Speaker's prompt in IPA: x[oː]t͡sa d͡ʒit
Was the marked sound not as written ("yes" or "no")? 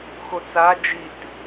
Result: yes